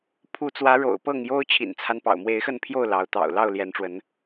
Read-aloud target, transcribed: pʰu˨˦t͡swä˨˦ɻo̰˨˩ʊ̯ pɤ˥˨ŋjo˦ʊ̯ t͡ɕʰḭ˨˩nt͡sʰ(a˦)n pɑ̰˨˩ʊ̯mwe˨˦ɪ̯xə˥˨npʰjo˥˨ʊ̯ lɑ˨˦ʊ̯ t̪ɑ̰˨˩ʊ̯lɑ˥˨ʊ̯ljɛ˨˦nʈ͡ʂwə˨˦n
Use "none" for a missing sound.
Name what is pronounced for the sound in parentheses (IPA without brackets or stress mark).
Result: a˦